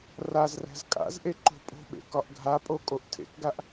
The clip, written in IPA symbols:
r a z r æ̤ z kʼ a̰ z ʔ e ǃ o̤ pʼ o̤ ɓ ḛ k ɒ ʔ ɡʱ a pʼ o kʼ o ʔ tʰ ḛ k ɡ a ʔ

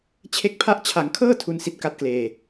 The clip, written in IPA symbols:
t͡ɕʰ e˥˩ k̚ pʰ a˥˩ ʔ t͡ɕʰ a˩˦ ŋ kʰ ɤː˥˩ tʰ u˥˩ n s i˥˩ t̚ k a˥˩ t̚ k l eː˧

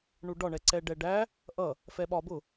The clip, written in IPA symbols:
ɳ u ɖ ɒ ɳ ɛ ǀ ɛ ɖ ɛ ɖ æ | ʔ ʌ | f ɛ ɓ ɒ b ʊ

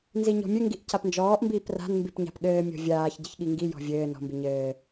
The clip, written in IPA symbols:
n z i ɲ ɔ̤ mʲ ɘ ŋ ɡ i ʔ c a p n d͡ʒ ɔː ʔ m b iː p r a̤ n m b i p ɲ a̤ p ɠ ɘː mʲ ɔ̤ vʲ aː ç ɟ ɘ ç ɠ i ŋ ɡ i j ɔ̤ vʲ ɘː n ɔ̤ m b i ɲ ɘː

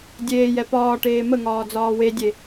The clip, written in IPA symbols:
dʲ eː j ɛ p ɒː ʈ eː m ə ŋ ɒː d͡z ɒː w e dʲ e

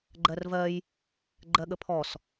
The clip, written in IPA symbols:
ɡ͡ǃ ɜ r v ɜ j | ɡ͡ǃ ɜ ɠ ə pʰ ɔ s

